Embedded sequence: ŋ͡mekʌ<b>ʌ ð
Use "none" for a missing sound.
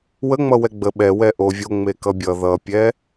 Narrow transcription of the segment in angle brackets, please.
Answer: bʲ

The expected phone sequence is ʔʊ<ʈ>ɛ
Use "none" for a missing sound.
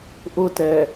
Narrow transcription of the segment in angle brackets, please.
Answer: t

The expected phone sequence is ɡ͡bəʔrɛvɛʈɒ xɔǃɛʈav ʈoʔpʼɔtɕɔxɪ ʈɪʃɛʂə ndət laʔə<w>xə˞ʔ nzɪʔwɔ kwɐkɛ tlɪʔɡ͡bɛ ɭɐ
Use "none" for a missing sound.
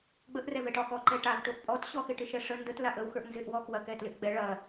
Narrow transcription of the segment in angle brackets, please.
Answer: w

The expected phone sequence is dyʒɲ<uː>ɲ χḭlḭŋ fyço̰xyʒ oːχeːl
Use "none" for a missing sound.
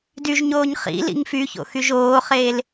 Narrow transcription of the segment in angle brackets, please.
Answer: oː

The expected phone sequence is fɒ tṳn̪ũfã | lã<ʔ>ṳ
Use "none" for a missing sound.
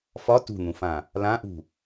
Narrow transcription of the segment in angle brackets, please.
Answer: ʔ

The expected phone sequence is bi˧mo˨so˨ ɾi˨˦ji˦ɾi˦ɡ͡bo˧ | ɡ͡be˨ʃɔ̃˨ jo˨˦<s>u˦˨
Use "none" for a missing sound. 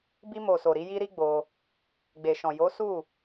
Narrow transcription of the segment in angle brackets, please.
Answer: s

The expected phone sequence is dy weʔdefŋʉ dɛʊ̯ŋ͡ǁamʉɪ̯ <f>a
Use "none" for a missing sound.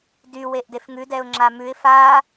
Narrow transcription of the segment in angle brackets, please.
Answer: f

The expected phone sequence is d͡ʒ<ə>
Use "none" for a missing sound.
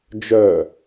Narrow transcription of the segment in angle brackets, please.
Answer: œ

